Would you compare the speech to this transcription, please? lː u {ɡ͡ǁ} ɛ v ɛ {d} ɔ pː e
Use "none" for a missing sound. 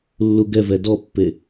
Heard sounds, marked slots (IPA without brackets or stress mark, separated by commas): ɡ, d